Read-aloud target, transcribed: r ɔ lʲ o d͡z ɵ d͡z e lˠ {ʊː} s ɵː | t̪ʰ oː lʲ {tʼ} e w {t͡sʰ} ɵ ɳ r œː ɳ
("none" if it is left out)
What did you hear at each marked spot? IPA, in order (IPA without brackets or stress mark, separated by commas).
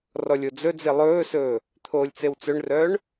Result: ɵː, t͡s, t͡s